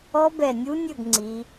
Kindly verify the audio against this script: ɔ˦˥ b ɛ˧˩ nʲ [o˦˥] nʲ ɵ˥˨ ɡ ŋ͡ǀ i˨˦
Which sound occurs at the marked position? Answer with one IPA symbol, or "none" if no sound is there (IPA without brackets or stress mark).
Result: u˦˥